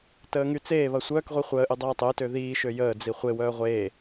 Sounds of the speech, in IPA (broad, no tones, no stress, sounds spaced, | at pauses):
t əː ŋ y t͡s eː β ɐ sʷ œː k ʁʷ i χʷ əː ʔ y dˤ ɐː tˤ ø t ø ð iː ʃ ø j əː d͡z i χʷ e w œː ʁʷ eː